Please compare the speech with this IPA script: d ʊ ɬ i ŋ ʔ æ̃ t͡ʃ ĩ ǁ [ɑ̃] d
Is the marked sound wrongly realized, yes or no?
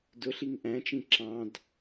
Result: no